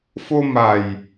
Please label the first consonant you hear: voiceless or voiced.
voiceless